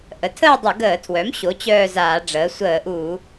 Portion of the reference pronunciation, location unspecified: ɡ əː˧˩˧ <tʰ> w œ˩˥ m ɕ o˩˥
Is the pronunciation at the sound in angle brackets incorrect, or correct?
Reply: correct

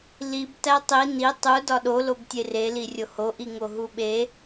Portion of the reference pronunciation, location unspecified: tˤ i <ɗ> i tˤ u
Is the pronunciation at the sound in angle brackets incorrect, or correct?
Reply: incorrect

